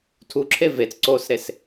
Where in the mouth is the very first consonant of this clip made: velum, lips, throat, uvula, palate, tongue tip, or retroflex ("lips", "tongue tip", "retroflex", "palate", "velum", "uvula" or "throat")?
tongue tip